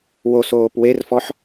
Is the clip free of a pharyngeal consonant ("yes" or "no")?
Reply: no